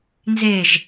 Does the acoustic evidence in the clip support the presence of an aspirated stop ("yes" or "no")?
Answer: no